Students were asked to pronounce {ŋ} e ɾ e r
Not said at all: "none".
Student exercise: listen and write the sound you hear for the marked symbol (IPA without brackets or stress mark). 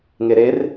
ŋ